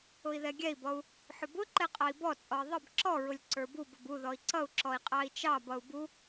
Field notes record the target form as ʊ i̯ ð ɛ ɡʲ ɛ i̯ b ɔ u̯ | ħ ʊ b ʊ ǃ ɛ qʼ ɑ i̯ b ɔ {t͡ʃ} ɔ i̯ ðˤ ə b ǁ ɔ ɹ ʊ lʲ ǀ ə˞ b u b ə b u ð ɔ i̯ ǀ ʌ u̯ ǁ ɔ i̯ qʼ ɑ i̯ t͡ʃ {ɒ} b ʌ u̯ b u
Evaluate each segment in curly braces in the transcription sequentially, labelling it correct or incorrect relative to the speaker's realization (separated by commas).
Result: incorrect, incorrect